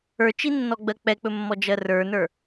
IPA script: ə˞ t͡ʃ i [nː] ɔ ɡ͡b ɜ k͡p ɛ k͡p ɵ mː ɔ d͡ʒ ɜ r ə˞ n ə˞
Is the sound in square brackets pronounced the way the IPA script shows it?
yes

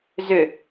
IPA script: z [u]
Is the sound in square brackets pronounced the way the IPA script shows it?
no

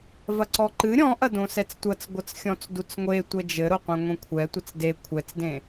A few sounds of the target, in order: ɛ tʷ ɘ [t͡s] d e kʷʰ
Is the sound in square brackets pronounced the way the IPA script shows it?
yes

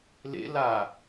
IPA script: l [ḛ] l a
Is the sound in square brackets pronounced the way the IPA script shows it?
yes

